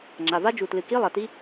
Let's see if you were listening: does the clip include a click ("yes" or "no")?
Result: yes